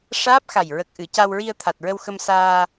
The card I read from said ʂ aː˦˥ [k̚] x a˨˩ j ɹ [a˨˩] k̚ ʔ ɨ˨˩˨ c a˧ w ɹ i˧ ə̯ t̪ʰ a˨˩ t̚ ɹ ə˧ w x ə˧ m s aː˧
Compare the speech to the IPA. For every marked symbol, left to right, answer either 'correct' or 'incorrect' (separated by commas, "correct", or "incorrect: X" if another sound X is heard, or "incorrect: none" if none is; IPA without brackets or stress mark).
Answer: incorrect: p̚, incorrect: ə˨˩